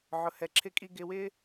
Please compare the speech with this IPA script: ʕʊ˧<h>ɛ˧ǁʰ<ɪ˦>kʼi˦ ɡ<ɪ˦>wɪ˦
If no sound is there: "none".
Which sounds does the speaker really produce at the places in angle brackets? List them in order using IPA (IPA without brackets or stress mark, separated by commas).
h, ɪ˦, ɪ˧